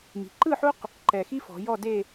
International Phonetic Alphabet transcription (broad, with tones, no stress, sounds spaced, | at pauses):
m i̤˩˧ ǃ ɯ˥˧ ħ u˥ q | ǃ ɛ˨˩ x i˥ f ɔ̤˩˧ j ɔ˥˧ d e˥˧